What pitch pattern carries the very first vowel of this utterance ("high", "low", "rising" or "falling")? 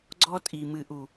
high